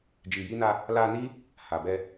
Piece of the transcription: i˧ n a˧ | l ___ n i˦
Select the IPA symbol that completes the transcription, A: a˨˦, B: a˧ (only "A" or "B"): B